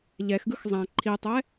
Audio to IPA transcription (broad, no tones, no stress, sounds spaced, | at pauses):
ʎ ɛ x ɡ ɯ x zˤ ã ǃʰ i tˤ ɛ